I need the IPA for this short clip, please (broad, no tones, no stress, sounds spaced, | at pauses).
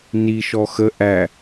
n i ʃ ɔ x ə ʔ æ